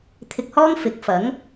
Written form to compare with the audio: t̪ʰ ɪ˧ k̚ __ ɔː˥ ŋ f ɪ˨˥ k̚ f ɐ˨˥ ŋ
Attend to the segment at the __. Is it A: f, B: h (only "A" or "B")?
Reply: B